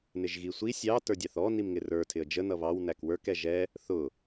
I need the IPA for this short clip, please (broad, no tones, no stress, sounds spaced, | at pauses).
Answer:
n ɪ ʒ ɣ i sʷ i sʲ ɑ t ə˞ dʲ ɑ θ ɔ n i m ŋ ɪ r ə˞ tʰ ɪ ə̯ d͡ʒ ə n ʌ β ɑ w n æ k w ə˞ k ɛ ʒ ɛ | θ ʊ